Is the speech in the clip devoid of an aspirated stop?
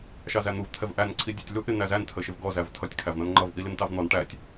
no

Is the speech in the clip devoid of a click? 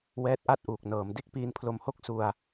yes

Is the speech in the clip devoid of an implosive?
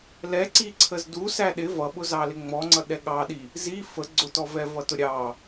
no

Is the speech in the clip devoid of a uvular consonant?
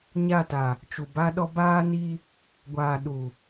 yes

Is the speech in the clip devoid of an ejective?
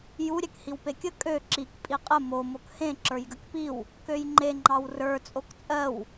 no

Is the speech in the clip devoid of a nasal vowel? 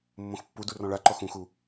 no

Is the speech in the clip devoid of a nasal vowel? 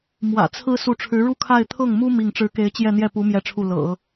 yes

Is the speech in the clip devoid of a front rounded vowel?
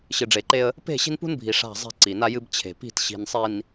yes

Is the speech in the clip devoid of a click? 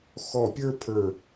yes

